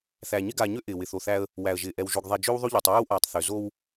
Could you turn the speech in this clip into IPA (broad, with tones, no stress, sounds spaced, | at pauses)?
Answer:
θ æ˨ ɲ ɪ˦ ɡ aː˨ ɲ ø˦ ʔ ɪː˨ w ɪ˨ θ o˨ θ æ˦ ə̯ | w æ˨ ə̯ ʒ ɪː˨ ʔ ɛ˨ w ʒ o˨ ɡ ðˤ ɛ˨ d͡ʒ ø˦ w ðˤ o˦ ʎ ɪː˨ tˤ w øː˦ w ʔ aː˨ tˤ θ ø˨ z o˦ w